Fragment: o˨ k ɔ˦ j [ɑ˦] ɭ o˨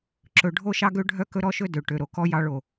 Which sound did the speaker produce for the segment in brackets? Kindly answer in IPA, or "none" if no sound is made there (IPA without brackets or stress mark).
ɑ˦